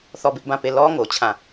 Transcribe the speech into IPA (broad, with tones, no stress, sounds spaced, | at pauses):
θ ɔ˦˨ b ɪ˦ ʔ b ã˦˨ p e˦˨ l ɔ˦ ŋ o˨ t͡ɕʰ ã˦˨